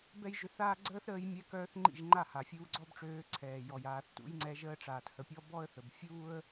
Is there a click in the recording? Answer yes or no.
yes